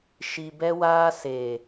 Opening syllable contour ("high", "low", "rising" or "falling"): low